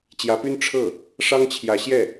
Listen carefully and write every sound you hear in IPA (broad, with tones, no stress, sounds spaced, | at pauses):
t͡ɕ j ä˧˥ p y˥ n ʈ͡ʂʰ ɤ˥˩ | ʂ ɑ˥ ŋ t͡ɕʰ j ä˧˥ ɕ j ɛ˥˩